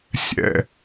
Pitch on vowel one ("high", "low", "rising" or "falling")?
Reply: falling